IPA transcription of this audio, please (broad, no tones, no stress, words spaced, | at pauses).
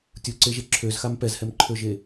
tʲuǀeʒe ǁʰøzxam pɛzhɛmǃʰøʒe